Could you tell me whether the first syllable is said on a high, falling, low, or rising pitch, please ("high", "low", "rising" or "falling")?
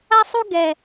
high